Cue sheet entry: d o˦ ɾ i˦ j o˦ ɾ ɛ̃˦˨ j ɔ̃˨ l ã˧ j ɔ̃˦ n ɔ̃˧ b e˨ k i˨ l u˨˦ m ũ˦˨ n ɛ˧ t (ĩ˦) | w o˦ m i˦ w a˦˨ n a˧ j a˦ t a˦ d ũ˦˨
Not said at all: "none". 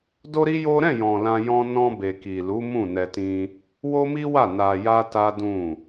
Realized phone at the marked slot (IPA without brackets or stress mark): ĩ˦